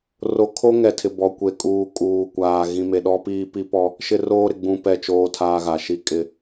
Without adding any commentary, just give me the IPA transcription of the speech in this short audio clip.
r o˨ kʰ o˦ ŋ ɛ˨ tʰ ɪ˨ b ɔ˨ kʷ e˨ kʼ uː˨ kʼ uː˨ kʷ aː˨ ɣ ĩ˨ m e˨ ɗ ɔ˦ p iː˦ p i˦ p ɔ˦ | ʃ ɪ˦ r oː˦ ɾ ɪ˨ ɡ͡b ũ˨ p ɛ˨ t͡ʃ oː˦ tʰ aː˦ ɣ a˨ ʃ i˦ kʼ ɪ˦

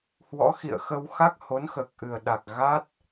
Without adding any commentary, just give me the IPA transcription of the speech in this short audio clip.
h w ɔ̰˧˥ x ḭ˧˨ ə̯ x ə˧ w x a˦˥ k̚ h o˨˦ n x əː˨˩ k̚ ʔ ɨ˨˩ ə̯ ɗ a˨˩ k̚ ɣ a˦˥ t̚

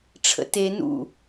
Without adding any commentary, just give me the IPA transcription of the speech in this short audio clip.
ʈ͡ʂʰ ə̰ t e n ṵ

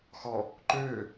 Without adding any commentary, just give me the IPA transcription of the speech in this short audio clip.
x ɔ | ǃ øː

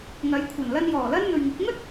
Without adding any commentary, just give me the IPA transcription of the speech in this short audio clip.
ŋ ɐ˨˥ j kʷʰ ɐ˨˩ n l ɐ˧ n j ɔː˨˩ l ɐ˥ n n̪ ɵ˨ ɥ ŋ ɪ˨˥ k̚ ŋ ɵ˥ t̚

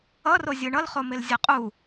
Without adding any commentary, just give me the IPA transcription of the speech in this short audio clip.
ʌ r o zʲ ɯ ɳ ʌ l χ o m e l zʲ ʌ qʼ u

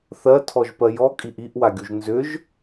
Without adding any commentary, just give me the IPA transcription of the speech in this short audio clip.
θ ɜ tʰ ɔ ʒ p ɜ j ɔ kʼ i ʔ i ʔ w a ɡʲ u ʒ n z ʏ ʒ

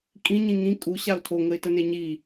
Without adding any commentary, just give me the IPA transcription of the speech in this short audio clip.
kʼ ĩ ɲ ĩ ŋ ĩ kʼ u ɕ a ʊ̯ tʰ o ŋ ə ɪ̯ t ə n e ɲ i

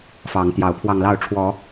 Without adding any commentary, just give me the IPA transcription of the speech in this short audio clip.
f ɑ˨˦ ŋ t̪ j ɑ˨˦ ʊ̯ pʰ w ɑ˧ ŋ l ɑ˥˨ ʊ̯ ʈ͡ʂʰ w ɔ˨˦

